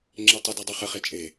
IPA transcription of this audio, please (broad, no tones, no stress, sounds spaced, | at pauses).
ŋ͡ǁ e tˤ ə d i dˤ u χ ə χ e t͡ʃʼ e